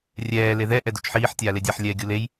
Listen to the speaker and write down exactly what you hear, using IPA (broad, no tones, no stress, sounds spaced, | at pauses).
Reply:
rʲ ɛː l e ð ɛ ʔ ɛ d u t͡ʃ ħ iː ħ tʲ aː l e dʲ a ħ lʲ ɛː ɡʲ u l e j